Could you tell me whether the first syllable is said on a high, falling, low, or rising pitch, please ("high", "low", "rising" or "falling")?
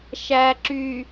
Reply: low